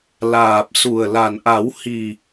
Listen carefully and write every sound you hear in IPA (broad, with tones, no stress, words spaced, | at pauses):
laː˨˩p̚su˨˩ə̯la˨˩nʔa˨˩˦w hi˨˩